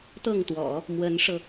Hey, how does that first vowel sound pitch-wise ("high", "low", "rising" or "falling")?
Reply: falling